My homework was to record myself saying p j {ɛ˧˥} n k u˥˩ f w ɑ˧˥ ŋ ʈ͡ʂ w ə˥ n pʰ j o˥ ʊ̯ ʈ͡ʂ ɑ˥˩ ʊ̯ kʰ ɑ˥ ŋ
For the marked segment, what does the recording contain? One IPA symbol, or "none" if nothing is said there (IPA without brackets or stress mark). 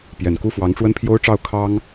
ɛ˨˩